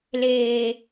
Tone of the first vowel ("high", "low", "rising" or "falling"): low